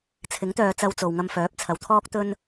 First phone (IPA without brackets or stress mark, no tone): t͡sʰ